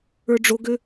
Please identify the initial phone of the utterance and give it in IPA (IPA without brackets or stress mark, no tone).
ə˞